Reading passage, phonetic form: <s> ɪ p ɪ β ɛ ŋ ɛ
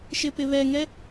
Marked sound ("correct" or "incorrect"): incorrect